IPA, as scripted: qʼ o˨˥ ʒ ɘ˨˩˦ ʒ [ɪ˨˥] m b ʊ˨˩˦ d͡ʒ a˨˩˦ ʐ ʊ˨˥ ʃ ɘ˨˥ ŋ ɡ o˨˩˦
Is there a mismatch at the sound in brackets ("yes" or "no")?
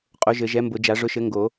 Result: yes